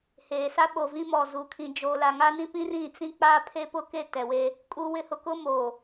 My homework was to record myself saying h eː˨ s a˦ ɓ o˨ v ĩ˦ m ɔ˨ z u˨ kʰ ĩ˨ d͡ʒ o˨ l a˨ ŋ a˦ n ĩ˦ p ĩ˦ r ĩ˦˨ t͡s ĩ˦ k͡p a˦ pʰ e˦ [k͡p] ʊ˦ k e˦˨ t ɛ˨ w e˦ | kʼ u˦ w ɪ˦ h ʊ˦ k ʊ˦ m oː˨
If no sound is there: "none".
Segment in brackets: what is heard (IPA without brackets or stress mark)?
p